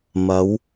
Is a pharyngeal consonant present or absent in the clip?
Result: absent